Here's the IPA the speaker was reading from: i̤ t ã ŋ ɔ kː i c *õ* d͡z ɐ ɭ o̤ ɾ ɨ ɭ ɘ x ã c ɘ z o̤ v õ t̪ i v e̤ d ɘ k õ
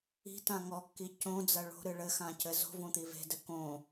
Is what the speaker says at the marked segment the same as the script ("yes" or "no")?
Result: yes